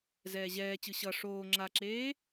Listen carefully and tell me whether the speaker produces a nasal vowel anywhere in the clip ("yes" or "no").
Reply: no